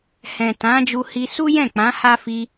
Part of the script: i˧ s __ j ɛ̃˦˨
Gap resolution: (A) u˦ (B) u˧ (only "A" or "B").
A